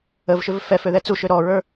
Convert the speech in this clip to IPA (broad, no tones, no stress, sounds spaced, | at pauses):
ə v ʃ ʏ v f ɛ f ø ð ɛ t͡s u ʃ ø ɾ ɔ ɹ ə˞